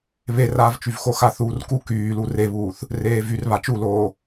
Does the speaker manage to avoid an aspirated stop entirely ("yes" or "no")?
yes